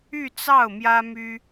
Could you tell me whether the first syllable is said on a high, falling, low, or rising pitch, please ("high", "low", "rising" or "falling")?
falling